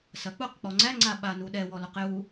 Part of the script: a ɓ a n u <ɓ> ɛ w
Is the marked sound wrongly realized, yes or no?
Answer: yes